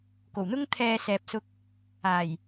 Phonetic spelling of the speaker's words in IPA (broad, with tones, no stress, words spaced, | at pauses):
ko˨˩wn̪ʊ˥ŋ t̪ʰɛː˧sɛː˨p̚sʊ˧k̚ | aː˨˩j